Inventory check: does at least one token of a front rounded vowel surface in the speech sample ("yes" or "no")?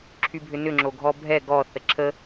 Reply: yes